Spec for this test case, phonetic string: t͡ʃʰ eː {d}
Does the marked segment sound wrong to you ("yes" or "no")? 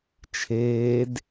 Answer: no